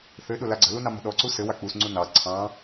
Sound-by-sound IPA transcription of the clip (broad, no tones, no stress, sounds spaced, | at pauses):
θ ɘ ɗ ʊ l a ɡ͡ǀ ə̤ l u n ɑ m ə̤ ɗ ɔ ǀ u s ɘ w a k͡p u s ŋ͡ǀ u n ɑ ǀʰ ɑ̃